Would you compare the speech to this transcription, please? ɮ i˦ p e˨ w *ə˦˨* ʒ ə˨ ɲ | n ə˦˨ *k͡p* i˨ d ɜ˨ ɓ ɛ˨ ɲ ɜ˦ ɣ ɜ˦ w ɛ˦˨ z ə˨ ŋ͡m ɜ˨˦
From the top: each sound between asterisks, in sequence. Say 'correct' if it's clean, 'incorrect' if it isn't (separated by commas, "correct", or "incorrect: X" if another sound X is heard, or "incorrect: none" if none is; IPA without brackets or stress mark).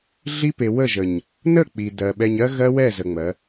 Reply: correct, correct